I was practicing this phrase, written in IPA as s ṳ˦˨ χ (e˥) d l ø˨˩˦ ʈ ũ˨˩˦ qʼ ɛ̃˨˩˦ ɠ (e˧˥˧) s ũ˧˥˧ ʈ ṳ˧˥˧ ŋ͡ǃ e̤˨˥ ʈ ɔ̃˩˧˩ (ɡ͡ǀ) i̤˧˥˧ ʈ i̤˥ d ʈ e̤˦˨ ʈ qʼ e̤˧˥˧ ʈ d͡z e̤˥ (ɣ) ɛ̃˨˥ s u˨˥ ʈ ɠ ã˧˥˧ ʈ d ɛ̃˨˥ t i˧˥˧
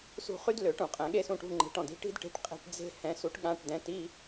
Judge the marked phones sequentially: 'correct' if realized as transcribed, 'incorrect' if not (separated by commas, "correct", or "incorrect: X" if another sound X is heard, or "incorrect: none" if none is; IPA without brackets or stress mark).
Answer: incorrect: y˥, incorrect: e˥, incorrect: d, incorrect: h